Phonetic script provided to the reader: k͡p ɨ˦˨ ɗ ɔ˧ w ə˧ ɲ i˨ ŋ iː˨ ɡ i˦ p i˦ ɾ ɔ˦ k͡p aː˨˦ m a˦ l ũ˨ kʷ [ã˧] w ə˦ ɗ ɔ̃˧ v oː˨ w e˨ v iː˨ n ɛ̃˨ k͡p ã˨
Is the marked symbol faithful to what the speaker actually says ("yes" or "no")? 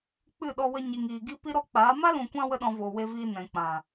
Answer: yes